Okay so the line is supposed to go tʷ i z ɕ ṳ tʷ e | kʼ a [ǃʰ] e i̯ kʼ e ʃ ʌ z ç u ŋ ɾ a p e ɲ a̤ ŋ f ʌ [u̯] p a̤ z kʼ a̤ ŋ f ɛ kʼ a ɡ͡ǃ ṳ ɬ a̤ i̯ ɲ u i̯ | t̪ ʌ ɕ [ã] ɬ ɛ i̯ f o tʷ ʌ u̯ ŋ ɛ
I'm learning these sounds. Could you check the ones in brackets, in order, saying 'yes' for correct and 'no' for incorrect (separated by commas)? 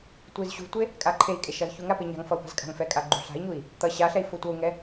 yes, yes, no